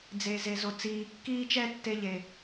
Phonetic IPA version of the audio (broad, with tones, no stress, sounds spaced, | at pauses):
d͡z e˨ z e˨ z o˨ t͡s iː˨ kː iː˦ t͡ʃ ɛ˦ tː e˦ ʎ e˨